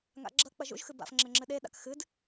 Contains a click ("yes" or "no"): yes